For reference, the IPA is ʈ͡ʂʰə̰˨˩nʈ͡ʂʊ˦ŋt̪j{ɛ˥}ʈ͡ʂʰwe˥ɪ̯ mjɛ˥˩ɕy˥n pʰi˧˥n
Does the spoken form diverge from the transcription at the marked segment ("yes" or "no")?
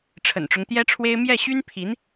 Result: no